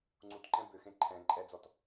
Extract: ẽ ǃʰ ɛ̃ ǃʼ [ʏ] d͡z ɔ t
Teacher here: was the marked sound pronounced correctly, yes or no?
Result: no